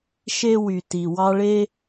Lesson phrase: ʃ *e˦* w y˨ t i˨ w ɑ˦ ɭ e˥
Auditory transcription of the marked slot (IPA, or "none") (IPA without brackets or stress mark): e˦